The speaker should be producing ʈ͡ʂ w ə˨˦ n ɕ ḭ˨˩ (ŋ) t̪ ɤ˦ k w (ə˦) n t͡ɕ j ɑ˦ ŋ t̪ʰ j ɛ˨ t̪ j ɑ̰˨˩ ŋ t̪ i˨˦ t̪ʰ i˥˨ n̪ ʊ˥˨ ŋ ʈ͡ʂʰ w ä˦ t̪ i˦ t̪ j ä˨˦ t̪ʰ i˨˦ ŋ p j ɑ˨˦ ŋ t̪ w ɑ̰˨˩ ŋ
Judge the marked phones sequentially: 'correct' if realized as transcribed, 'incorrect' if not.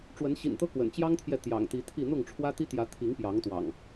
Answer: incorrect: n, incorrect: ə̰˨˩

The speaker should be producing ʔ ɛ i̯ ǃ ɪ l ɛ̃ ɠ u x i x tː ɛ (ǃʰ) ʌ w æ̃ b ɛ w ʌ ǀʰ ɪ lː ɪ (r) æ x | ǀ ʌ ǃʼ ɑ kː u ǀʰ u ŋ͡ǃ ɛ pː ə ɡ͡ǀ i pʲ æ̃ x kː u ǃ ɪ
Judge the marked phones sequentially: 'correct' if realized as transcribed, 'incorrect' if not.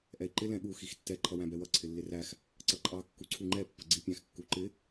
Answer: correct, correct

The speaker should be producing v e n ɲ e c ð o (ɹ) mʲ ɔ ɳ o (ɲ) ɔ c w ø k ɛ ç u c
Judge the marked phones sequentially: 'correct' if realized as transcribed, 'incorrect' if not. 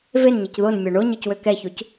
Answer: incorrect: n, correct

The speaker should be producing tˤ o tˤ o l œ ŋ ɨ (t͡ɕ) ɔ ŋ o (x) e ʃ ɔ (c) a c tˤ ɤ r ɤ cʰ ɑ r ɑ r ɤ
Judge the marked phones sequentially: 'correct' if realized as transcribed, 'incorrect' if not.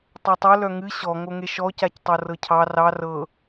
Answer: incorrect: ɕ, incorrect: ŋ, correct

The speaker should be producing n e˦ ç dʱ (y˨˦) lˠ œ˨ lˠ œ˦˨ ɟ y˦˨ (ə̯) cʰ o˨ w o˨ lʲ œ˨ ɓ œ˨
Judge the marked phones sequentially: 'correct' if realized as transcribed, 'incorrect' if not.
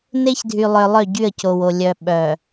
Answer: incorrect: y˨, correct

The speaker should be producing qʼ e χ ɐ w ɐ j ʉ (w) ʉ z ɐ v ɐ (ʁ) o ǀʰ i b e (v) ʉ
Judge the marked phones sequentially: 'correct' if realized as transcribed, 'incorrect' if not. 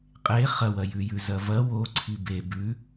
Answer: incorrect: j, incorrect: w, incorrect: b

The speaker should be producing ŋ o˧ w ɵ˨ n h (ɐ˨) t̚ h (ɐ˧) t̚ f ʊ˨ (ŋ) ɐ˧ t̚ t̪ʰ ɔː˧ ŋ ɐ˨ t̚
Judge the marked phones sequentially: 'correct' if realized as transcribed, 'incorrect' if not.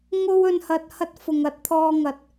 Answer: correct, correct, correct

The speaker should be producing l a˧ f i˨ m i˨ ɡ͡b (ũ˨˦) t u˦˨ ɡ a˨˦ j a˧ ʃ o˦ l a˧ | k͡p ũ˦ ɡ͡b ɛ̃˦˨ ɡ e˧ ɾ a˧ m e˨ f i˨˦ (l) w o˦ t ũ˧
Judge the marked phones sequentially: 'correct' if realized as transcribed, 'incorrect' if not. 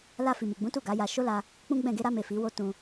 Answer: correct, incorrect: none

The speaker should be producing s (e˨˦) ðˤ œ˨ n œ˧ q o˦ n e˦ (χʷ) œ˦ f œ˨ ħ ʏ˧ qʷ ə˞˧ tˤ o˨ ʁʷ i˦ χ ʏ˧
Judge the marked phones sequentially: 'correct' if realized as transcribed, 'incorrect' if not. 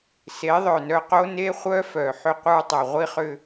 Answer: correct, correct

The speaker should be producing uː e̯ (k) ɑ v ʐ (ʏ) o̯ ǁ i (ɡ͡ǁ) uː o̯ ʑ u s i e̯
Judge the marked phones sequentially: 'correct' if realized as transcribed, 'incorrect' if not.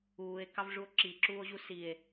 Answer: correct, incorrect: u, incorrect: ǁ

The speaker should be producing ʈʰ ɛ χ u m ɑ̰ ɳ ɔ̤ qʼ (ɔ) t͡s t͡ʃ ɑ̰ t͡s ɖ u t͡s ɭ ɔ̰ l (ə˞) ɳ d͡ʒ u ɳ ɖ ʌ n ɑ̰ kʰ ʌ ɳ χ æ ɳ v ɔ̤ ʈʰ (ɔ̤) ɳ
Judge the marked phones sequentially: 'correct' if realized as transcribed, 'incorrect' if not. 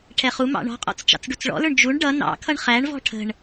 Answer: incorrect: ɔ̰, correct, incorrect: ə̤

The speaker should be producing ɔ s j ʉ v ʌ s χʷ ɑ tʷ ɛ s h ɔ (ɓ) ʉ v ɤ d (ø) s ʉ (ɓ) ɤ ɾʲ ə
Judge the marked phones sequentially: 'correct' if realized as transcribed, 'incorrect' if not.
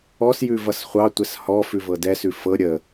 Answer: incorrect: f, incorrect: ɛ, incorrect: f

